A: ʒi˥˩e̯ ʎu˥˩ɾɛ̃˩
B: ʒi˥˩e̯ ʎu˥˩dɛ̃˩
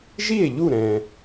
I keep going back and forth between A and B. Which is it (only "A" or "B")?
A